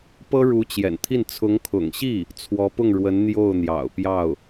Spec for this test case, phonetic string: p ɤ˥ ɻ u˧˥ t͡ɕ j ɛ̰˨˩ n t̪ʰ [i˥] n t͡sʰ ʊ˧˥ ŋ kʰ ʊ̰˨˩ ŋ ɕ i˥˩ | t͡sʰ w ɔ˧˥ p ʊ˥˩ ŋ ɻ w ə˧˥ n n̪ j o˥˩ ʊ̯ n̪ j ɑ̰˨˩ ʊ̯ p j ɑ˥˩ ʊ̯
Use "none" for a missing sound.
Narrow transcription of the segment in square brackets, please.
i˥˩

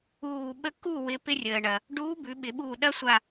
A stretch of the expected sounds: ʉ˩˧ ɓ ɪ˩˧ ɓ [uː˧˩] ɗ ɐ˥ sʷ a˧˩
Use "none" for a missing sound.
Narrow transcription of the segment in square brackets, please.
uː˧˩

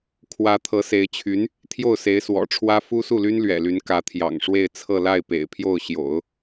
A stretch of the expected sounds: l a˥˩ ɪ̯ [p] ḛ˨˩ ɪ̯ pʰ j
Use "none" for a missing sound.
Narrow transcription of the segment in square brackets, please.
p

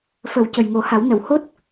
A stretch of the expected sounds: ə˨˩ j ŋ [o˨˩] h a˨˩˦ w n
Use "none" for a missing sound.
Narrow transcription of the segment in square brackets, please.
o˨˩˦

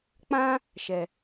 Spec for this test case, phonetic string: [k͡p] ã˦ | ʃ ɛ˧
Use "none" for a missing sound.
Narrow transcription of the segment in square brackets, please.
k͡p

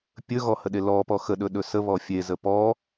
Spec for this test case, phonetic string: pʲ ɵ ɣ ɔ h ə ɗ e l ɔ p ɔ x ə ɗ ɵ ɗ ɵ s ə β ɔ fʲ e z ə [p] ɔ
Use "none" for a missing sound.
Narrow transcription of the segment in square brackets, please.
p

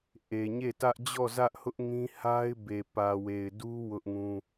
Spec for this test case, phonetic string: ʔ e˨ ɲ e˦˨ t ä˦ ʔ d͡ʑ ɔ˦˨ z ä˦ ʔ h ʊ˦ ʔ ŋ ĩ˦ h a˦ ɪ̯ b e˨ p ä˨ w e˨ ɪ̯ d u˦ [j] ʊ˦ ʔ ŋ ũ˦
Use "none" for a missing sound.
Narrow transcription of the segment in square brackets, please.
w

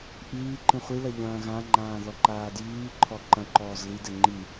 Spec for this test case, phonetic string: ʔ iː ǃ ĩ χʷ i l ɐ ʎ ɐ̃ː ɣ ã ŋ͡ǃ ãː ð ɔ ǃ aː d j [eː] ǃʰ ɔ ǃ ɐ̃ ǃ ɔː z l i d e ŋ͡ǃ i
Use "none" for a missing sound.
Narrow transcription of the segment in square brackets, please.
iː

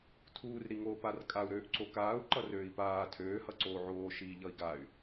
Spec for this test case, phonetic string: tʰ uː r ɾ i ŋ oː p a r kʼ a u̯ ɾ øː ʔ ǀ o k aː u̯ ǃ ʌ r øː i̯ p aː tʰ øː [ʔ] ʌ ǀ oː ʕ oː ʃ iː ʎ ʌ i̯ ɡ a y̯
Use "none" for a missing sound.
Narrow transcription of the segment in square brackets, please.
h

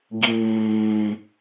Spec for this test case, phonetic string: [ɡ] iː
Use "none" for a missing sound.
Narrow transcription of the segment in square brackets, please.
ɡ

